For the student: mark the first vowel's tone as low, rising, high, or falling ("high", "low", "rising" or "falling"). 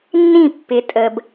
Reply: falling